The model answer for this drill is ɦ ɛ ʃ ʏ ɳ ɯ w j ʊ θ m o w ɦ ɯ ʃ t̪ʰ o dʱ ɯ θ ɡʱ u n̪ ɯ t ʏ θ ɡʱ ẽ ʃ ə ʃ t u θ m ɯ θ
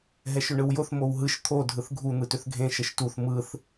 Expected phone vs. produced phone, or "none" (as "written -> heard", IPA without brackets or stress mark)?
none